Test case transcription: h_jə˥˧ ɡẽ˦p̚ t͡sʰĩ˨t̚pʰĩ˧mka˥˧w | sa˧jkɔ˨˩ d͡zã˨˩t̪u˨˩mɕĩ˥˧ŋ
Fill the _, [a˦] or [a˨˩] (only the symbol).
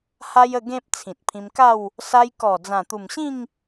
a˦